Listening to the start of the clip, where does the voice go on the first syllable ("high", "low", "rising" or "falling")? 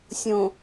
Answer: low